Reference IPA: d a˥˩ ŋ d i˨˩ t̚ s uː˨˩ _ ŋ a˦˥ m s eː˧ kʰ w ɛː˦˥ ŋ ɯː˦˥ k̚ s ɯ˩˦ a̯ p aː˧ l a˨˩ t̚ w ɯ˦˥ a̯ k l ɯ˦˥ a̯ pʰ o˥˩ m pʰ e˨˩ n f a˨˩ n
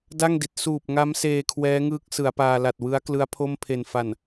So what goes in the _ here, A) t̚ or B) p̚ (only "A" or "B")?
B